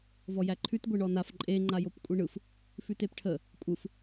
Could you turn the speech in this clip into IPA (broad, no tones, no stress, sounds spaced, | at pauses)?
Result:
v ɔ j æ ǃʰ ʉ t ɡʷ e ɳ ɔ n a f ǃʼ e ŋ͡ǃ a j o p kʷʼ e ɳ ɯ f | f ʉ t e p ʈʰ ə | kʷʼ ɯ f